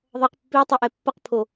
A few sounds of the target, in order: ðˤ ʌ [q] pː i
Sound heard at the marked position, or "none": q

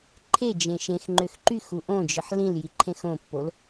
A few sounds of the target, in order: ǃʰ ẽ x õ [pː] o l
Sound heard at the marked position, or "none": pː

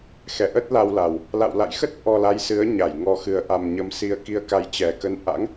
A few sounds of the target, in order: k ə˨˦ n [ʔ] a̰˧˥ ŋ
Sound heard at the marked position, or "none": ʔ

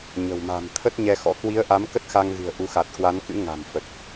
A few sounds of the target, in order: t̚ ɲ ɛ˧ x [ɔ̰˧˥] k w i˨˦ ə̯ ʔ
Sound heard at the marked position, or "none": ɔ̰˧˥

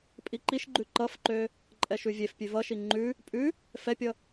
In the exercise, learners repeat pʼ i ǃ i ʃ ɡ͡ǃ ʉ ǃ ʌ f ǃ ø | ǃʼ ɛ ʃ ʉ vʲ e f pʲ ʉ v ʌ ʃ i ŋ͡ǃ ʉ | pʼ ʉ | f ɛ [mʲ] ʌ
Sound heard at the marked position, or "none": pʲ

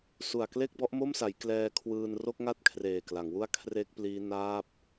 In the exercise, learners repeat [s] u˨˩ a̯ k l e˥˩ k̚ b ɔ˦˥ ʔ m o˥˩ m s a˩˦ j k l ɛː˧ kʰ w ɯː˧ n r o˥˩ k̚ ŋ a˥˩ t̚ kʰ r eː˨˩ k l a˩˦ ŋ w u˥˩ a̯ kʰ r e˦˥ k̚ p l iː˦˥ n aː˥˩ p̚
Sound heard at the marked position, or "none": s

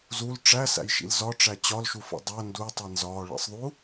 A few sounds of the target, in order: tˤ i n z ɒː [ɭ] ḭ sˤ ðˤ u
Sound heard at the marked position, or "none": ɭ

